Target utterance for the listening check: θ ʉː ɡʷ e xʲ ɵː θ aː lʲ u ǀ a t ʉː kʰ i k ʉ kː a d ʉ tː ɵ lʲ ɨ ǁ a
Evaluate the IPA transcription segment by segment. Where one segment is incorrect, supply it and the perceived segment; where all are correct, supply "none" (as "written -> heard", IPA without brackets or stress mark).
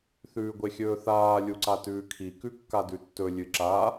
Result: none